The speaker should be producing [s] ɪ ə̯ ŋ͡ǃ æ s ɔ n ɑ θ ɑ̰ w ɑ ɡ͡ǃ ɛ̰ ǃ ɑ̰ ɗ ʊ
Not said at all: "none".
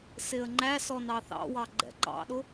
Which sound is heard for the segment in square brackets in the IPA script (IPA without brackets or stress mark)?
s